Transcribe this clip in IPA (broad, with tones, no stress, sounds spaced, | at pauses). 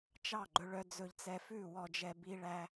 t͡ʃ ɑ˥˩ ɡ͡ǃ ɵ˧ ɭ œ˧ d͡z ɵ˧ ʎ t͡s ɛ˧ f ʉ˥˩ w ɔ˧ d͡ʒ ɛ˧ b i˧ ɭ æ˧